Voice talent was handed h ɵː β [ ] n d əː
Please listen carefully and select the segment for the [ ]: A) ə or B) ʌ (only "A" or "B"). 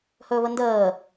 A